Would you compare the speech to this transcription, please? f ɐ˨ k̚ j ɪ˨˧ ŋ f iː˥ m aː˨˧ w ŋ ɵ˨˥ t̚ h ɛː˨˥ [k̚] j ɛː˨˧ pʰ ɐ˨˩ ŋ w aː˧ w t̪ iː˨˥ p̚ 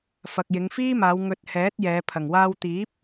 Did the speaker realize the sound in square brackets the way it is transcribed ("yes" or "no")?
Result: no